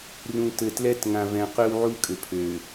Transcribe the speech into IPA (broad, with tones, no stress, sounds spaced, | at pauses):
r ũ˨ t ɘ˨ t l ɛ˦ t ŋ ã˨ v ɛ̃˨ q ø˦ w ʕ u˦ kʼ ɘ˨ pʰ ø˨